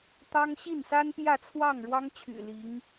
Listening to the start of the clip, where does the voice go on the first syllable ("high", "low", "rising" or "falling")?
high